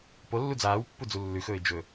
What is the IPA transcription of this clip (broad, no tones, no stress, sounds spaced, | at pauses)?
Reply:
p o lː u d͡z aː w pː u d͡z u lː ʉ x ɵː ɪ̯ d͡ʒ ɵ